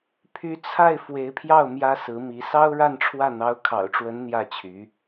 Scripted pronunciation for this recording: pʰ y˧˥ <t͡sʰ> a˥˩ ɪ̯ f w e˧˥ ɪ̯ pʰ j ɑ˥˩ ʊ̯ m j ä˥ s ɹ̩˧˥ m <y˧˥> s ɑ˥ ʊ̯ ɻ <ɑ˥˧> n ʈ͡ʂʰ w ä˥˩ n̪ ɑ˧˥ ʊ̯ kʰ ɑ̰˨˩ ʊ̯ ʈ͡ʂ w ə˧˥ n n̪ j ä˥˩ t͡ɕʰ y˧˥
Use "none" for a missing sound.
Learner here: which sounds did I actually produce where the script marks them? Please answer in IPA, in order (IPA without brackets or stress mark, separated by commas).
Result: t͡sʰ, i˧˥, a˥˧